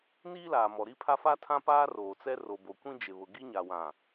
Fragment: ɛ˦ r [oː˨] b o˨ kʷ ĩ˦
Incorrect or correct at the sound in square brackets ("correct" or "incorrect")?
incorrect